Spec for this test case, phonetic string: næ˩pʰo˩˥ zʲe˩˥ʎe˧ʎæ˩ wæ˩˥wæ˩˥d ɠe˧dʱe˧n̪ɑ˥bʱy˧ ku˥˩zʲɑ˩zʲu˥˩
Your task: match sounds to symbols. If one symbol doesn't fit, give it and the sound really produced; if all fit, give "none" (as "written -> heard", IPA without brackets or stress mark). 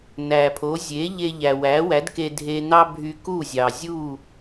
ɠ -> k